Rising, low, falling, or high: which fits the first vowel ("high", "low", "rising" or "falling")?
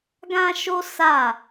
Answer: high